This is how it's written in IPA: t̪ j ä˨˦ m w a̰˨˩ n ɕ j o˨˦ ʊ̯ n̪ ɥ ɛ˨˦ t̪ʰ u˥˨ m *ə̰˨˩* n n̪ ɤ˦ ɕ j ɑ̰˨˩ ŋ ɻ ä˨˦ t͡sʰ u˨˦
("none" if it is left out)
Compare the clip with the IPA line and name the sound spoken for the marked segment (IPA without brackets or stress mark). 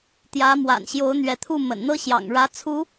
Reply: ə̰˨˩